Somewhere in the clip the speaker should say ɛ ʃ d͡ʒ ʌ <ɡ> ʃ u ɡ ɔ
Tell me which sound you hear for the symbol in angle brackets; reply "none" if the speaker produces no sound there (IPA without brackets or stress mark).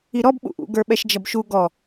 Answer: b